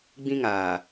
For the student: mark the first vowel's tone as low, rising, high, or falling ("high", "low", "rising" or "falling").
high